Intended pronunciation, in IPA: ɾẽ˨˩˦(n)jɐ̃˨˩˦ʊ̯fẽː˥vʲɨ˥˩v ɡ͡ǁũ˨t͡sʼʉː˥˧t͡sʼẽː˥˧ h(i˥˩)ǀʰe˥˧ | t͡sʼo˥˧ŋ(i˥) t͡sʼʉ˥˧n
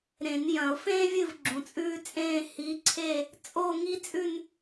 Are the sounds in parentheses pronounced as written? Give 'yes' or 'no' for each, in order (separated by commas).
yes, no, yes